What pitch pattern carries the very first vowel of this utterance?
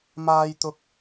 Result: high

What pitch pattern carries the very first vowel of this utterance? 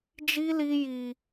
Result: high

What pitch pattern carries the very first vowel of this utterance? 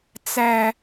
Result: low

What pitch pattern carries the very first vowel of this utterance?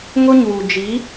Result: high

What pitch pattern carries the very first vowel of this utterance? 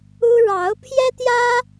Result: high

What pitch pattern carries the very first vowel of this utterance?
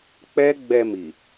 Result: high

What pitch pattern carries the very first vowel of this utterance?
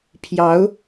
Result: rising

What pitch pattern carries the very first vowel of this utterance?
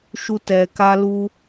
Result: high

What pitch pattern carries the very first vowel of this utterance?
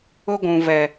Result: high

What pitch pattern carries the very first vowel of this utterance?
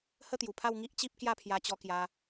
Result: falling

